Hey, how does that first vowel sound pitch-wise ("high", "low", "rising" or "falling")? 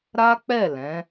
high